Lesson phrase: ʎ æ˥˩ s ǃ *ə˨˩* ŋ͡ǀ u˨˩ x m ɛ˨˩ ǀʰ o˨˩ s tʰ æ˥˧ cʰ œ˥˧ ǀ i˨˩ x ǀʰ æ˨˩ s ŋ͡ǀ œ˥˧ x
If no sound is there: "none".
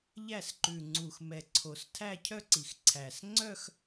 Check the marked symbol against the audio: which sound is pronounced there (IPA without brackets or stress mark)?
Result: ʉ˨˩